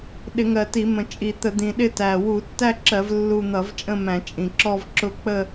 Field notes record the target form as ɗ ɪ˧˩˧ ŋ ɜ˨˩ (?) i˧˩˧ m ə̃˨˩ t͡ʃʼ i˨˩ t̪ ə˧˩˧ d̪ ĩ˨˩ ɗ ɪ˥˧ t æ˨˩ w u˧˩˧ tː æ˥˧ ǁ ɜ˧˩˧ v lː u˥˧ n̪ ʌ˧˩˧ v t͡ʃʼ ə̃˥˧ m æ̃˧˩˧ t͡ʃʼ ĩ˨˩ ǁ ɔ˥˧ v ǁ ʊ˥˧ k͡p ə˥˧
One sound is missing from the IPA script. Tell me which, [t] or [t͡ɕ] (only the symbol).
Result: t